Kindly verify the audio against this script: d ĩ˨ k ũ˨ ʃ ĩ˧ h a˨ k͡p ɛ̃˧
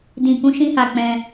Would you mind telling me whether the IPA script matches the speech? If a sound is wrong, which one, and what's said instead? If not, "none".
ũ˨ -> ũ˧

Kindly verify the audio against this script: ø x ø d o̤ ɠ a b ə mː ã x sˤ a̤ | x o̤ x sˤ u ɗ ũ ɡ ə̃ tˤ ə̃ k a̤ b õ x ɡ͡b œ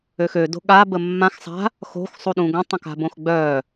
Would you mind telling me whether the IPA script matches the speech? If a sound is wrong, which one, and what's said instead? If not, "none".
none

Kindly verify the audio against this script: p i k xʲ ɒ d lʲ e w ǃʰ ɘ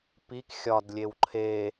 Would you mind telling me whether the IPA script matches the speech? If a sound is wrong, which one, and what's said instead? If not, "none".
ɘ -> e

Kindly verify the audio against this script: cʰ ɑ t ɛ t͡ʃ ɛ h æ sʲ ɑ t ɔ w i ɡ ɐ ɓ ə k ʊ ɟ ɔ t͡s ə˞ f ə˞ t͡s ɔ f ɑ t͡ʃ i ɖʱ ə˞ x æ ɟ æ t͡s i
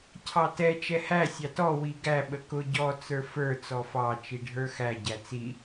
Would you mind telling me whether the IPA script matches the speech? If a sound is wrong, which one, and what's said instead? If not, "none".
ɐ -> æ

